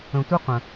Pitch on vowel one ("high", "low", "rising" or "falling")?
low